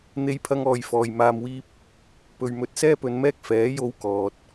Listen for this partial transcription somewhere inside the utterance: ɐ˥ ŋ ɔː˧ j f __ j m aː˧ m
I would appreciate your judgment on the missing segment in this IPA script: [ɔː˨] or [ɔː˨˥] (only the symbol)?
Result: ɔː˨